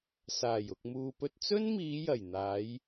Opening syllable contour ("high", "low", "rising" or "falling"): low